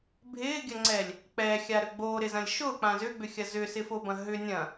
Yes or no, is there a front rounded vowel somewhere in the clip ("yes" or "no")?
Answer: yes